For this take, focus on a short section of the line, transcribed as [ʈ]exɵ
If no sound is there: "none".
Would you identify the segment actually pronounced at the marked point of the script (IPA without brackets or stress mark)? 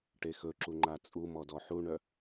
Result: ʈ